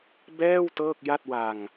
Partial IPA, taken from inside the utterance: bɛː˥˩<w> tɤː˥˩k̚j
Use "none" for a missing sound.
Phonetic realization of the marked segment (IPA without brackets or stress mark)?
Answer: w